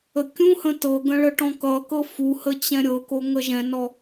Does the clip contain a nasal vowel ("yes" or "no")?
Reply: yes